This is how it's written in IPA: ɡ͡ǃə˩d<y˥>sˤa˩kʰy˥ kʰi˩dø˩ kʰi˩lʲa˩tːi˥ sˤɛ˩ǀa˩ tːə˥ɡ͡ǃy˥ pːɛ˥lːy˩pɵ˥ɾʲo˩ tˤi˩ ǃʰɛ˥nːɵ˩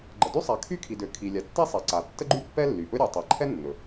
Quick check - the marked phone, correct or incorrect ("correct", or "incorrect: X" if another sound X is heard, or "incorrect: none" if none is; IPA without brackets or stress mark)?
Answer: correct